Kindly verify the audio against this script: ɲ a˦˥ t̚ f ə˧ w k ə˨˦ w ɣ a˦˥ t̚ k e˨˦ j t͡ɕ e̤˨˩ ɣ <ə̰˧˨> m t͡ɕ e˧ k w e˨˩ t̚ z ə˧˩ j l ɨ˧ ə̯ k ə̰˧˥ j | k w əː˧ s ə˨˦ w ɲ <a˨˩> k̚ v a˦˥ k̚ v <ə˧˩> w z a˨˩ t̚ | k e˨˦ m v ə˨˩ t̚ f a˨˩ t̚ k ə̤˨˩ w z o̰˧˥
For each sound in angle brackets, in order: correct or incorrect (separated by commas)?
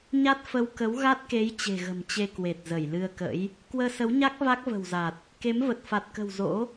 incorrect, incorrect, incorrect